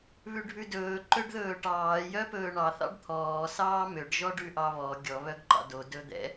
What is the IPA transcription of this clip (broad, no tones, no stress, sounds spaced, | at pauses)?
β ʉ ɖʱ ʉ d ɵː ǃ ø ɖ ð ɵː ʈ ɑː j œ p ɵː ɳ ɑ θ ɑ̰ ɖ t̪ʰ ɔː s ɑː m ø ɖ ʒ ɔ ɖ ʉ ʔ ɑ β ɔ ɡʲ ɔ β œ ɡ ǃ ɑ̰ d o d ɵ d̪ ɛ̰